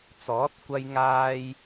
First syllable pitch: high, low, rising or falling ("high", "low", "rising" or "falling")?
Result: rising